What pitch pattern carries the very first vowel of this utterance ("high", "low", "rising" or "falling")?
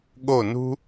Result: falling